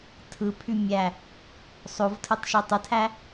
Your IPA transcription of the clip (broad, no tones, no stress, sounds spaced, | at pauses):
tʰ ɯ pʰ y mʲ æ | sˤ o v tʰ ɯ tˤ ʃ i tˤ ɯ tʰ æ